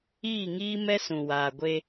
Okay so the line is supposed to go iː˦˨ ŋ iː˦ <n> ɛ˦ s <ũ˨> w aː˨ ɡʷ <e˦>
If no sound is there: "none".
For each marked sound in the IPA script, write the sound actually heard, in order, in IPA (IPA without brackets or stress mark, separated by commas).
m, ũ˨, e˦